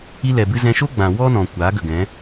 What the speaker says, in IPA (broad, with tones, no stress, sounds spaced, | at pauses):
i˧ l ɛ˨ b ɨ˧ z ɛ̃˧ ʃ o˦ ɡ͡b ã˨ w ɔ˦ n ɔ̃˨ kʷ aː˨˦ ɡ ə˨ ɡ ɛ̃˨˦